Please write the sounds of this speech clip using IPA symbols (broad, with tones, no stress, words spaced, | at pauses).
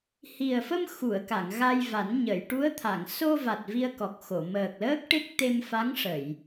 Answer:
hi˨˩ə̯fə˧m xu˨˩˨ə̯ka˨˩˨ŋ ɣa˧jva˨˩˦nɲə˨˩˨j ʈu˧˥ə̯t̪ʰa˨˩˨ŋ so˧va˨˩t̚ vi˧ə̯kɔ˨˩k̚ xo˨˩˨ məː˨˩k̚ləː˦˥k̚ʈe˦˥k̚ t̪e˧mfa˧˥ŋ ʂə˨˩˨j